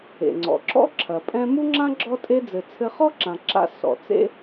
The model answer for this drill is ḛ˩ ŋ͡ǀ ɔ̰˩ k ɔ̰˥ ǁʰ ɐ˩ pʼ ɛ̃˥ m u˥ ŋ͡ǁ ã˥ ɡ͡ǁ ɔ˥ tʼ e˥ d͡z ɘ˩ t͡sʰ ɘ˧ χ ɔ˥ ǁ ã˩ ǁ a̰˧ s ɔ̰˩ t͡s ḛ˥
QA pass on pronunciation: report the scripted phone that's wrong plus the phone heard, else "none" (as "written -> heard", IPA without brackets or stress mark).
k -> ǁ